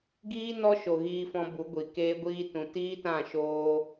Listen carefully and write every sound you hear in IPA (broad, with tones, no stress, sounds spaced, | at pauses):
ɡ iː˦ n ɔ˦ ʃ o˨ ɣ iː˧ f ɔ̃˧ b u˨˦ ɡʷ i˨ k eː˦ ɡʷ iː˦ t ũ˨ t iː˦ t ã˦˨ ʃ oː˦